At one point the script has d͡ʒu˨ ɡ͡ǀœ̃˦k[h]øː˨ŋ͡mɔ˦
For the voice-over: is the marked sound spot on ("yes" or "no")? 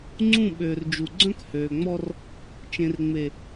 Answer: yes